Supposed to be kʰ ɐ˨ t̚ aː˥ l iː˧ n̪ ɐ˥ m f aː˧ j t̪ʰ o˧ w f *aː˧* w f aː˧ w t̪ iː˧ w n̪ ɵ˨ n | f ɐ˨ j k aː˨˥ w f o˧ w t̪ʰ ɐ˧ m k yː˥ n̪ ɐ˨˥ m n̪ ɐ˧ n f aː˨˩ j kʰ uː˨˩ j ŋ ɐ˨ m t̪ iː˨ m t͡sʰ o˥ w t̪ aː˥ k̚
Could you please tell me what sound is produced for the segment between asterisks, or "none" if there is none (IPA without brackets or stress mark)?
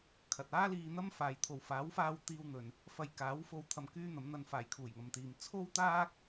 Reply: aː˨˥